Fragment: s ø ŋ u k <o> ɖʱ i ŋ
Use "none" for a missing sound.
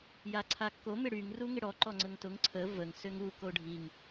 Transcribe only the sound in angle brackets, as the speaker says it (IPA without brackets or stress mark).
o